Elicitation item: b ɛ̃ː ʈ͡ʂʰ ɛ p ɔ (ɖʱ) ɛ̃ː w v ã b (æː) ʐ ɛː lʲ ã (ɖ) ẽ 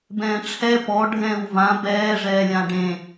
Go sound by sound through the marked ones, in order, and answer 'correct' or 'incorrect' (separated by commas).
correct, incorrect, correct